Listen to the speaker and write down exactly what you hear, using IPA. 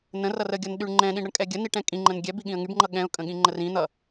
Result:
n ə̃ r ʌ r ə ɡʲ ʌ n ɗ y ɳ ŋ͡ǃ ɛ̃ ɗ ĩ ɳ ɾ ə ɳ kʼ ɛ ɡʲ ə n i ʈ ɛ̃ kʼ ĩ ŋ͡ǃ ə̃ n ɡʲ ɛ b i ɠ ĩ ə̯ ŋ y b ŋ͡ǃ ʌ ɠ ɛ̃ ʊ̯ kʼ ə̃ ɠ ĩ ŋ͡ǃ ə r ĩ n̪ ʌ

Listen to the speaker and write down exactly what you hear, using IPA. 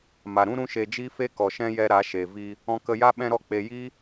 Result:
m a˨ ɾ ũ˦ ɾ ũ˦ ʃ e˧ d͡ʒ i˦ f e˦ k ɔ˨ ʃ ɛ̃˦ j ɛ˧ ɾ a˨˦ ʃ e˨ v i˧ | ɔ̃˧ k ə˧ j a˦ ɓ ɛ̃˦ ɾ ɔ˦ k͡p e˧ j i˦

